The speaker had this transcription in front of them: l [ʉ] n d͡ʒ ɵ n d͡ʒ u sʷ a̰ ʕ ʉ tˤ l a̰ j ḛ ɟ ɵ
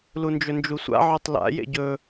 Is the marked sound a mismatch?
yes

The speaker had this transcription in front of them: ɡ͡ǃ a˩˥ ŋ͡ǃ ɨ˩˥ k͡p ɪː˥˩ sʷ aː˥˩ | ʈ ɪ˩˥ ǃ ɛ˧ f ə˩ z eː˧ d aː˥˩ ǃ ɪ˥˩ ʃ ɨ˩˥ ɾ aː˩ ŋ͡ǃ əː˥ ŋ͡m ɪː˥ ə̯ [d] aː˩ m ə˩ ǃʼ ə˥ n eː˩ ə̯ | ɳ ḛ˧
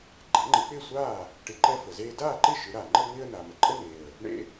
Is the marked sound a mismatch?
yes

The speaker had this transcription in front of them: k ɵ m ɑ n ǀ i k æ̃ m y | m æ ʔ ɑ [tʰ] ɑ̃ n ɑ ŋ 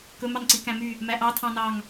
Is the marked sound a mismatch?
no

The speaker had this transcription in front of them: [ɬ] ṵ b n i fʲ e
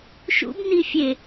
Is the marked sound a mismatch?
yes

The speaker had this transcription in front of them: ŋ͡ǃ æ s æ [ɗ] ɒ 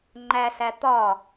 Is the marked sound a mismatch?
yes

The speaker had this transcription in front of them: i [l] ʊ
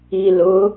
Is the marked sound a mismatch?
no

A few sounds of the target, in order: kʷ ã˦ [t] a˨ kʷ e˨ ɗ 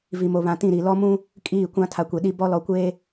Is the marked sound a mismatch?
yes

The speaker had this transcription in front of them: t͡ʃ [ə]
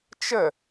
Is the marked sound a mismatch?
no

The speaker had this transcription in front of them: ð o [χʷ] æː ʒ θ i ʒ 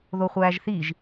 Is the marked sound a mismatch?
no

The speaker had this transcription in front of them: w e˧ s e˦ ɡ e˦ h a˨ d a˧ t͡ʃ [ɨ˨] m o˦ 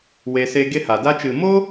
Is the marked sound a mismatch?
no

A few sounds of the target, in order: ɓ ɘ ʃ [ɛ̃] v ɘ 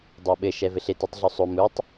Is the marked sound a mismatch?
yes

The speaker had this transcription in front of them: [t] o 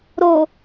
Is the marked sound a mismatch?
yes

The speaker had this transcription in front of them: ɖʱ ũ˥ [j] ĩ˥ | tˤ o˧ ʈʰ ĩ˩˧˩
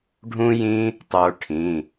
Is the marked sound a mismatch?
no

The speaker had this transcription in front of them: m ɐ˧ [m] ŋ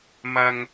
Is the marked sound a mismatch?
yes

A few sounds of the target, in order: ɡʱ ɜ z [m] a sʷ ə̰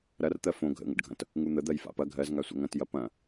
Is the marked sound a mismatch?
yes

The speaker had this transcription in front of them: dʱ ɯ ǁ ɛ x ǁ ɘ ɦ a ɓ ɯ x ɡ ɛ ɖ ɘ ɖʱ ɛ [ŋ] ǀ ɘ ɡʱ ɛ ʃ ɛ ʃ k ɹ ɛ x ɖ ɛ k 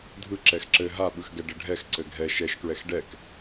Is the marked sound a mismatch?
yes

